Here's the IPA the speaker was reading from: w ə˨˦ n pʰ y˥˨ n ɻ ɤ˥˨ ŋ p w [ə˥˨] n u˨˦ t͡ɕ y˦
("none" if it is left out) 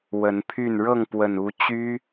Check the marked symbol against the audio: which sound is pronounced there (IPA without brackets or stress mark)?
ə˨˩